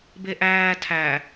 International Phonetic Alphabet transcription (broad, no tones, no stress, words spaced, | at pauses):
beʔæː tʰæ